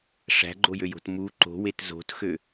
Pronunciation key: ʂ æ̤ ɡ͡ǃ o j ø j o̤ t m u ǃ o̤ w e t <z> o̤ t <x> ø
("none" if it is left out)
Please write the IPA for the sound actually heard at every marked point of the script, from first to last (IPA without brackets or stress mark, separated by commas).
z, x